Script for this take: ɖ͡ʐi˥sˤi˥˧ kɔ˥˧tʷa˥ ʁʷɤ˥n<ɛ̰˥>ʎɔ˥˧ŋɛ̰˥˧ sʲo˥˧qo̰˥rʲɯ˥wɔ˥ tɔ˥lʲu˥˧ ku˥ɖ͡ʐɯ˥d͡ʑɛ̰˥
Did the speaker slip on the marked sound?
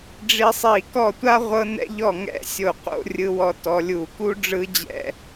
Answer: no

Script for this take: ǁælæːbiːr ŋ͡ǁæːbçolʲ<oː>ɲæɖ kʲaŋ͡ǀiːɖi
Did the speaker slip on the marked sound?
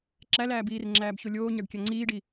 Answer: no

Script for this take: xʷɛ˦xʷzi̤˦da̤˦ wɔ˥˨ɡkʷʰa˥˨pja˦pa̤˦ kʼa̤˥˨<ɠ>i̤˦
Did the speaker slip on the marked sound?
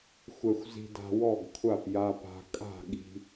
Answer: no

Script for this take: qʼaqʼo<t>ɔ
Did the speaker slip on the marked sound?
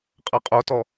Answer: no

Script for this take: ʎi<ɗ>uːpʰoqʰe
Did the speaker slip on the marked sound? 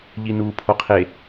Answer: yes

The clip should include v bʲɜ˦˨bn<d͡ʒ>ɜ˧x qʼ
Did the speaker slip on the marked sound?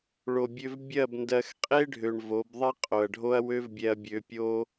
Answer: yes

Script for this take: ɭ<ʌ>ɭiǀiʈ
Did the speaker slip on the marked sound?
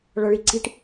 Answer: no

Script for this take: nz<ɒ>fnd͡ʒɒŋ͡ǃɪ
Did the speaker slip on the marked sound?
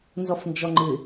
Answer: no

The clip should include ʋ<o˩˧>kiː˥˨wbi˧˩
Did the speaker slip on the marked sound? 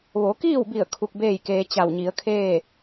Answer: no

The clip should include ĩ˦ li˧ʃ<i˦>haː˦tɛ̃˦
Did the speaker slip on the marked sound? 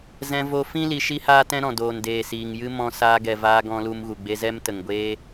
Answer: no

